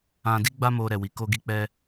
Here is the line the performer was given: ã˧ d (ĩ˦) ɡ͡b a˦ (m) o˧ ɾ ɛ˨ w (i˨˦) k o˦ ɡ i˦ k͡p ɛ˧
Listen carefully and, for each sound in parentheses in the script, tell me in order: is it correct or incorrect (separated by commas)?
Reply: incorrect, correct, correct